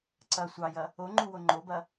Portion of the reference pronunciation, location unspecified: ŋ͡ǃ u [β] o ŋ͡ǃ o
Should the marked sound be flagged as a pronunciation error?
yes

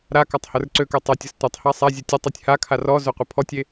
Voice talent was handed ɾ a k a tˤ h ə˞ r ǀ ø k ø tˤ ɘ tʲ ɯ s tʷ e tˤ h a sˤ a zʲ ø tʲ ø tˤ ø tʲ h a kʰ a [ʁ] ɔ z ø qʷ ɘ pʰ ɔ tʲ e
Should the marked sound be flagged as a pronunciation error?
yes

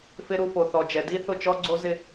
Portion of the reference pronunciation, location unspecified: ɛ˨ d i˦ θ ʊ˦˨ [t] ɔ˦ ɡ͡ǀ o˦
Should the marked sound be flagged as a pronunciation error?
yes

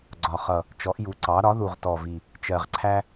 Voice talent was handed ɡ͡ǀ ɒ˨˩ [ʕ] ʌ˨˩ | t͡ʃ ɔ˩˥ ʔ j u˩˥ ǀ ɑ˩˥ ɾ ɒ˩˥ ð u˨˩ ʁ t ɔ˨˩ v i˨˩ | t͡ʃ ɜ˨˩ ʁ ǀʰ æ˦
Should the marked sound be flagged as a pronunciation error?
yes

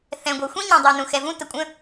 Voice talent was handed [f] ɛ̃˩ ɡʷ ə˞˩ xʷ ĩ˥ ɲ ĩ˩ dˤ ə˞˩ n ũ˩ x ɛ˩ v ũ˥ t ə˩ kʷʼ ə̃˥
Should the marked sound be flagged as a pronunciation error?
yes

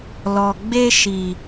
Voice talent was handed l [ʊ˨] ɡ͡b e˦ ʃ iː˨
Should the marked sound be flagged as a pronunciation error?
yes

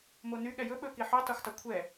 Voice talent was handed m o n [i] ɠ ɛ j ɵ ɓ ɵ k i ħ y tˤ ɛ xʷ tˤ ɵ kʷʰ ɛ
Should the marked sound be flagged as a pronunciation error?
yes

